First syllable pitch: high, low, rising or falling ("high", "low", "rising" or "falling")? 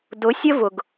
rising